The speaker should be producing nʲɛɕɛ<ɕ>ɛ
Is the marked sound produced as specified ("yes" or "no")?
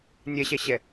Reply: yes